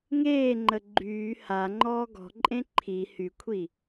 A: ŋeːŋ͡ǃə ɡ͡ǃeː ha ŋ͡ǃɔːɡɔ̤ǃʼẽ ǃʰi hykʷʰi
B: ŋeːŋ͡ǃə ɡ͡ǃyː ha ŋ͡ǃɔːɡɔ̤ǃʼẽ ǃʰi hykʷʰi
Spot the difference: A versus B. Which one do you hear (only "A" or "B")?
B